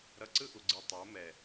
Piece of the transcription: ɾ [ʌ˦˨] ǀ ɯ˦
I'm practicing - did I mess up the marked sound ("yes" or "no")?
yes